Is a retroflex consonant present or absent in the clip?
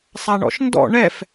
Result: present